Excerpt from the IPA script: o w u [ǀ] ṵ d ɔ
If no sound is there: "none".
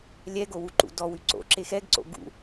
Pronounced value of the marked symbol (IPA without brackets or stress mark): ǃ